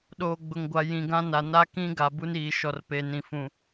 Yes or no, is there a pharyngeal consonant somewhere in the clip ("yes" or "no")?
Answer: no